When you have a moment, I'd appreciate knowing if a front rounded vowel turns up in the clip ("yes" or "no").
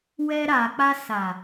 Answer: no